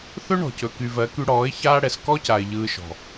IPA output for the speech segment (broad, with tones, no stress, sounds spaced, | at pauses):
θ ɵ˦ ɳ ɔ̤˨ c ɵ˨ k y˨ v ɜ˨˦ k y˧ ɽ ɔː˨˦ ɪ̯ ç aː˦ ɽ ɛ˨ s k ɔ˦ c a˨ ɪ̯ ʎ ɯː˧ ʃ ɔ̤˨